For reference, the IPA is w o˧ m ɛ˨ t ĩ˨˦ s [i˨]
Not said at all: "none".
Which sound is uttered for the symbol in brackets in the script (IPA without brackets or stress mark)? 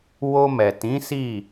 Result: i˦˨